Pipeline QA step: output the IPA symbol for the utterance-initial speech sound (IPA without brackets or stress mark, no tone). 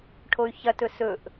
ʈʰ